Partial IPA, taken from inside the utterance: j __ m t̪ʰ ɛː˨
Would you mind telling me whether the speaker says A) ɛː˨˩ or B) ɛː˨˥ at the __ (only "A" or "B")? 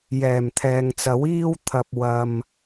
A